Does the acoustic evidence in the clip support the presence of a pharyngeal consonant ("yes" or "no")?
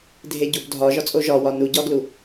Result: no